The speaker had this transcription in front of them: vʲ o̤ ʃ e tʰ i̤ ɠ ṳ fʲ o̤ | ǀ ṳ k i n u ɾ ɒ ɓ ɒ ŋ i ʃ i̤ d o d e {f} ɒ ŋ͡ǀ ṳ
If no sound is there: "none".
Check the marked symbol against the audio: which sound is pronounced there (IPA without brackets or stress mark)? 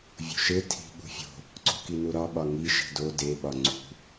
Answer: ɓ